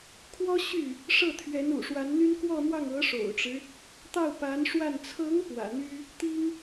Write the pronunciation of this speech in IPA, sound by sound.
kʰ w ɔ˥ ɕ y˥˩ | ʂ ɤ˥˩ t̪ʰ ɥ ɛ˧˥ n ṵ˨˩ ʂ w a˧˥ n n̪ y˥ n k w ɔ˥˧ n̪ w ɑ˥˩ ŋ ɤ˧˥ ʂ o̰˨˩ ʊ̯ ʈ͡ʂ ɻ̩˦ | t̪ ɑ˥˩ ʊ̯ p a˧˥ n ʂ w a˥˩ n t͡sʰ ɤ˧˥ ŋ p w ä̰˨˩ n̪ y˥ | t̪ i˥ ŋ

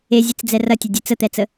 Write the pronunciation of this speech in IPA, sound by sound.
e zʲ ɨ t͡s d͡z ɛ r ɐ tʲ ɐ dʲ e t͡s ə t̪ ɛ t͡s ə

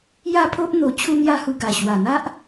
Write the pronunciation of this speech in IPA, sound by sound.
j a˦ pʰ o˦ ʔ n̪ o˧ t͡ɕʰ u˦ n̪ j a˦ h u˧ ɡ a˨˩ ɕ w a˨˩ n̪ a˦ ʔ

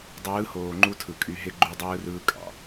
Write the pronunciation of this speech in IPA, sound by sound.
dˤ ɯː˨˦ h oː˨ ŋ͡ǃ u˦ tʰ ɯ˨ kʼ y˦ ɦ e˦ ɡ͡ǃ y˦ dˤ ɯː˦ r ɯː˦ kʼ ɑ̰˨

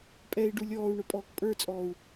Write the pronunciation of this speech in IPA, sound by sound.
pʼ ɛ i̯ ɖ u lʲ ɔː u̯ ɳ ʊ pʼ ɔː k pʼ ə˞ t͡sʼ ɔː u̯

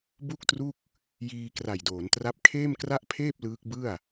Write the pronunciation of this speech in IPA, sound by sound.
b u˥˩ k̚ t r u˥˩ k̚ | j iː˧ k r a˨˩ j d oː˩˦ n t r a˦˥ p̚ kʰ eː˥˩ m k r a˥˩ ʔ pʰ eː˥˩ p̚ l ɯː˦˥ k̚ b ɯ˥˩ a̯

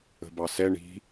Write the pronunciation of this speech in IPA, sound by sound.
ə̤ b ɑ s ɛ ɳ i̤

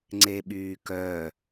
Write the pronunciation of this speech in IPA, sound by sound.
ŋ͡ǀ e ɓ yː k œ

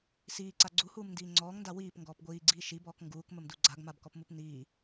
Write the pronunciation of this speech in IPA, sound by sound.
s iː ǀ a ɡ͡ǀ u h uː m n d iː ŋ͡ǀ ɔː ŋ n d a w iː p ŋ ɡ ɔː p ɡʷ iː ɡ͡ǀ iː ʃ i b ɔː k ŋ ɡ uː k m ə m d u ɡ͡ǀ a ɡ m a b k ɔ p m u p n iː

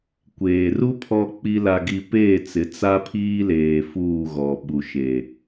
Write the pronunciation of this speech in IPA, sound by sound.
kʷ eː˨ r u˦ pʰ ɔ˦ k͡p i˦ l a˦ ɡ i˦ p eː˦˨ t͡s ɪ˨˦ t͡s a˦ pʰ iː˦ l eː˨ f uː˦˨ ɣ ɔ˨ ɓ u˨ ʃ e˨

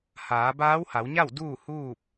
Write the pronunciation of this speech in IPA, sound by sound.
h aː˩˧ b aː˧˥ w h a˩˧ w ɲ a˥˨ w d uː˥˨ h uː˥˨ p̚

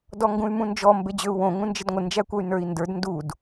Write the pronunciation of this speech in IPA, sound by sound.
d ɔ ŋ ɡ ũ y̯ m ũ n d͡ʒ ɔ m b e d͡ʑ ø u̯ w õ ŋ ũ n d͡ʒ ə d ŋʷ ə n d͡ʒ æ kʷ ʌ y̯ n ə˞ i̯ n d ə˞ d n d u d

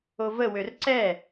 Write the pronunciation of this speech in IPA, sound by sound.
o v ə w ø r ǀ ɛ

